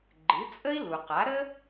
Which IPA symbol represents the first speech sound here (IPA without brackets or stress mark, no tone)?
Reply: ɡ͡ǃ